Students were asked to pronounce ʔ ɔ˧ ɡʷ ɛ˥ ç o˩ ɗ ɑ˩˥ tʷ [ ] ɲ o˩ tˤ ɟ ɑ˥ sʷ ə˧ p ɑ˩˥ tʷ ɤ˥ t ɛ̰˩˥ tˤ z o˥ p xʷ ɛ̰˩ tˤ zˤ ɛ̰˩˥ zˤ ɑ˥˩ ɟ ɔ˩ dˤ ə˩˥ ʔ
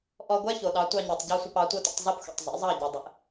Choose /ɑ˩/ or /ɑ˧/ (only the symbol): ɑ˧